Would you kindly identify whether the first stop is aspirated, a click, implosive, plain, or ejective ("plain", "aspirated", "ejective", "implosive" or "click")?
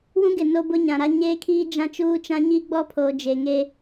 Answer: plain